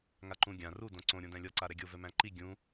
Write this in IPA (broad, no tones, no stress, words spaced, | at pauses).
ŋaǃũ ɡʲã ru dõǀõ ɾʲõdæ̃lʲɔ ǀaɾɛɡʲo vɛmæ̃ǃi ɡʲũ